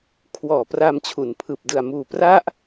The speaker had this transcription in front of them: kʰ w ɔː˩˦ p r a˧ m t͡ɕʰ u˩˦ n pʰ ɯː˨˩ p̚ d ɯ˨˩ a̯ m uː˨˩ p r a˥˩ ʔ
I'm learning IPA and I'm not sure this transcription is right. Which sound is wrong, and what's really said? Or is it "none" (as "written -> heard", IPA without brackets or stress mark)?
none